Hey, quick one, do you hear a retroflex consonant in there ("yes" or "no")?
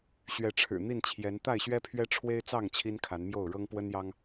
yes